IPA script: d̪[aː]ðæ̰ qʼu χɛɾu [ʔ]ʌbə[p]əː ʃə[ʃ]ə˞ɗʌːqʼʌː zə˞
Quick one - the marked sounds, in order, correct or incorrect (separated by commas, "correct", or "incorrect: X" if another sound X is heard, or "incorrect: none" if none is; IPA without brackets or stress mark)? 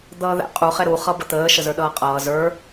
incorrect: ʌː, incorrect: χ, incorrect: t̪, incorrect: z